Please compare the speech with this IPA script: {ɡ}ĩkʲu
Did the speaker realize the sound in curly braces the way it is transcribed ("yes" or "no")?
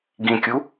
yes